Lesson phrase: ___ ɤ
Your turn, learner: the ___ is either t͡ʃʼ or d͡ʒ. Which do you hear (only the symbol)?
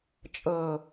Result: t͡ʃʼ